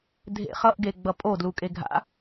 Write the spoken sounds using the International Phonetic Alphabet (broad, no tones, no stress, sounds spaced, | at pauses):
dʱ ḛ χ ʌ ʔ ɡ e ɡ͡b ʌ pʼ o d l u kʼ e ɡʱ a̰